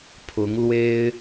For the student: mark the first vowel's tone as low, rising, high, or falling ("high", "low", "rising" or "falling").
rising